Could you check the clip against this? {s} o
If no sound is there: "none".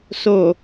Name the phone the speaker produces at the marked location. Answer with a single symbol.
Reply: s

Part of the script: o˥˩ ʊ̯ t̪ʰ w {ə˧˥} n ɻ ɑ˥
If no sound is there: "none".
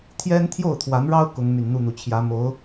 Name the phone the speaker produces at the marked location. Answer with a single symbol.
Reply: a˧˥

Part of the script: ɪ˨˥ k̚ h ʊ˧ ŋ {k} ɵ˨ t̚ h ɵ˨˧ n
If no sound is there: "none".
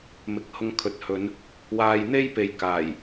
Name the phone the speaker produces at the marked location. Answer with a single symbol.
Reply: kʰ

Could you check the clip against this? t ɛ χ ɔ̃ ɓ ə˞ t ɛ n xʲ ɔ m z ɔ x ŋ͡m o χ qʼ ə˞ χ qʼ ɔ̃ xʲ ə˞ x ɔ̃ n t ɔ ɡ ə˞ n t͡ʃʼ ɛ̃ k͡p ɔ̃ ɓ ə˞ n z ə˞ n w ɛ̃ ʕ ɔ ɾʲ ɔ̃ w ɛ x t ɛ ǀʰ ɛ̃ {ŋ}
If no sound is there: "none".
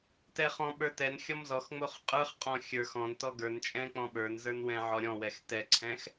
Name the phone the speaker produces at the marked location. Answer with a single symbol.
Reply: x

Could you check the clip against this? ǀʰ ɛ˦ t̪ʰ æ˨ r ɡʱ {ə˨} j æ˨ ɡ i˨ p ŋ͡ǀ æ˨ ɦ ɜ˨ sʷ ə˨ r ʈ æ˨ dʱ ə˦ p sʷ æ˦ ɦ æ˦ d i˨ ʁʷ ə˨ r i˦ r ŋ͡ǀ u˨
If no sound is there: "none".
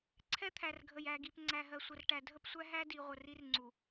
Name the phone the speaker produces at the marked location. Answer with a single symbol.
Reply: ə˨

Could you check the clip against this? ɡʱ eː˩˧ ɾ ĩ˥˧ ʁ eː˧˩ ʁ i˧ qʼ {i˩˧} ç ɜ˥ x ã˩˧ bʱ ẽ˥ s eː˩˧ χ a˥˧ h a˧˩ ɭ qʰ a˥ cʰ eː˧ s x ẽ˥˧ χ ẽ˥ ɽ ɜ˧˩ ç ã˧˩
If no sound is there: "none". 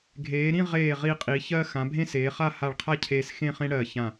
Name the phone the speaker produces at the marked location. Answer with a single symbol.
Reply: i˩˧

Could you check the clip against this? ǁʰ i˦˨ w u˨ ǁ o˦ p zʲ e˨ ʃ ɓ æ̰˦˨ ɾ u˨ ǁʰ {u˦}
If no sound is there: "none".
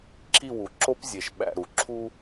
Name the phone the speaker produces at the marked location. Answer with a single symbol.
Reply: u˦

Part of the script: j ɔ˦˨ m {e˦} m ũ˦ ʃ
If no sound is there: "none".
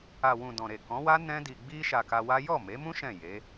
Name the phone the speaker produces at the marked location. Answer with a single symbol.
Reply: e˨˦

